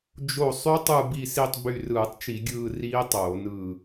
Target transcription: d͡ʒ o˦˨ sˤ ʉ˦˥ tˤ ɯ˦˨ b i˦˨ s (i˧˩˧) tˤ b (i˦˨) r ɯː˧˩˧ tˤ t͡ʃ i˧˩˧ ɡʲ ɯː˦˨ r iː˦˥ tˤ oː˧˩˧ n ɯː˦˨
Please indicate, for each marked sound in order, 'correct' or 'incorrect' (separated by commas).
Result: incorrect, incorrect